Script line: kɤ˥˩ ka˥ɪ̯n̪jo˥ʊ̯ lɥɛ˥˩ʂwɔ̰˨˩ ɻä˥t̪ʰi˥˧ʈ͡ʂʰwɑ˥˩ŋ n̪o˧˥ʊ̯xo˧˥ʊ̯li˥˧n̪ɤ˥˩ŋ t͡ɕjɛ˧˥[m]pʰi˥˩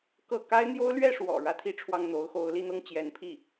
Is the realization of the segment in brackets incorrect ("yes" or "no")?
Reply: yes